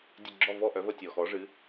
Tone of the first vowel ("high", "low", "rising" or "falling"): falling